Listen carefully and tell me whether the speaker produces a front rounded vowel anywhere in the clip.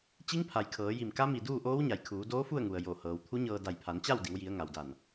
no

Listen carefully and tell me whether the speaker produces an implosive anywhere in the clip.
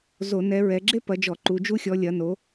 no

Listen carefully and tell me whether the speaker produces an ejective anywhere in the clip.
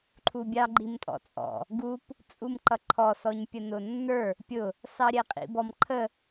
yes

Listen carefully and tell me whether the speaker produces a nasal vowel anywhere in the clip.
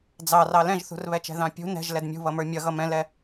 yes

